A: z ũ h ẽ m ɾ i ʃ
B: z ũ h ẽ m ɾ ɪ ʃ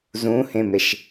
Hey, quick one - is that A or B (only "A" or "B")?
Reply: B